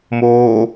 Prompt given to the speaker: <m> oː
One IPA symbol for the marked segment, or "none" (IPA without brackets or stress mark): m